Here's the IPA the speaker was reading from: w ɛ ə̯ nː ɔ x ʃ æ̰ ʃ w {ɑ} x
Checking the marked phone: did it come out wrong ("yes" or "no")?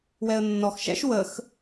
yes